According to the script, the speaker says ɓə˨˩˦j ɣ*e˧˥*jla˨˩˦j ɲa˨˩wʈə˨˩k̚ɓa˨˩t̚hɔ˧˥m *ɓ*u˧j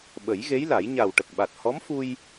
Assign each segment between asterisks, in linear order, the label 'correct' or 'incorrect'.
correct, incorrect: f

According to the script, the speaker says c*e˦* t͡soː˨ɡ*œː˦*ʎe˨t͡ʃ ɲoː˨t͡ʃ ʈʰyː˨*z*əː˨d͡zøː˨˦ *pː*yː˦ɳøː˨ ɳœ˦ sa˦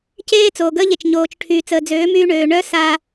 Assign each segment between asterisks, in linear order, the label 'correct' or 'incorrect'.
incorrect: eː˦, incorrect: əː˦, incorrect: t͡s, incorrect: m

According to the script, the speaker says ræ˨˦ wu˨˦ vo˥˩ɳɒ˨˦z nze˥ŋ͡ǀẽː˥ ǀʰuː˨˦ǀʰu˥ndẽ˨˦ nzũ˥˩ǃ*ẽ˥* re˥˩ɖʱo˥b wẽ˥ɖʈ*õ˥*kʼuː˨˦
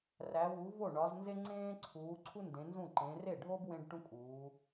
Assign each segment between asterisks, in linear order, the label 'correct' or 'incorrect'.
incorrect: ẽ˨˦, incorrect: ũ˥

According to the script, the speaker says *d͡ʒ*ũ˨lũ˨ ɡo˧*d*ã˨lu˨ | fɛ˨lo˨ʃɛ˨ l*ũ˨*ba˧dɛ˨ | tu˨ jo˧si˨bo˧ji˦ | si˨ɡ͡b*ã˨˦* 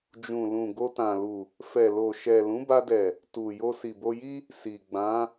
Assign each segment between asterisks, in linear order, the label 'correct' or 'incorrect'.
correct, incorrect: t, incorrect: ũ˨˦, correct

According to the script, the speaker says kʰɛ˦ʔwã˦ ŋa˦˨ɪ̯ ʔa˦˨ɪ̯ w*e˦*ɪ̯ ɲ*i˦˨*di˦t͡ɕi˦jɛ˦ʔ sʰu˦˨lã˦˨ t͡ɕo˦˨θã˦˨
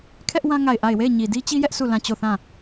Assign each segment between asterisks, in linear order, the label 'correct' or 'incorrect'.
incorrect: e˦˨, incorrect: i˨

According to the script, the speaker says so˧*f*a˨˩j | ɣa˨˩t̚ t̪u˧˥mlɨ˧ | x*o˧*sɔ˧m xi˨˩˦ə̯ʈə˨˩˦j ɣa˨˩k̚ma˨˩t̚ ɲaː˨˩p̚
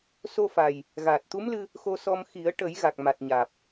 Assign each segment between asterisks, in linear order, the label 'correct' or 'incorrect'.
correct, correct

